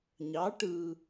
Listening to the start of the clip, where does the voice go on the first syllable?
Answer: rising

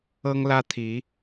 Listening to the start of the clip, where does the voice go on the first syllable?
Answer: high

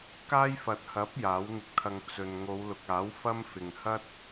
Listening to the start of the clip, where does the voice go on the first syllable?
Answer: high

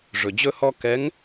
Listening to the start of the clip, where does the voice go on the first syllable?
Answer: low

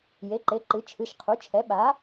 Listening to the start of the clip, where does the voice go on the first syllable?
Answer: rising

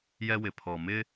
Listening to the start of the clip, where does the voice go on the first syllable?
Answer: high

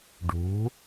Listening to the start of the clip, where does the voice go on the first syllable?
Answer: rising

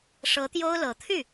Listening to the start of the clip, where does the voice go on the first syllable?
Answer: rising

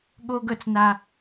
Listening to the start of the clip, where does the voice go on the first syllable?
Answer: high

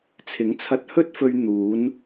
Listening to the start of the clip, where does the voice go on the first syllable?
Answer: rising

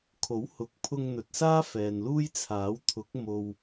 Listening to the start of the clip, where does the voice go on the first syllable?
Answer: rising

